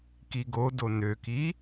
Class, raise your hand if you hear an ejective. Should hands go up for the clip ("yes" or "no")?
no